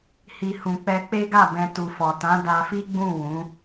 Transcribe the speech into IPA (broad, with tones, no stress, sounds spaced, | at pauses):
h i˨ h ũ˨ k͡p ɛ˧ k͡p e˦ ɡ a˦˨ b ɛ̃˧ t u˨ f ɔ˨ t ã˨˦ d a˧ f i˦ ɡ͡b ũ˦˨ w ũ˨˦